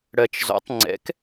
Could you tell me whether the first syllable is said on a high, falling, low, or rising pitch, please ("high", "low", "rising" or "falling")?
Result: low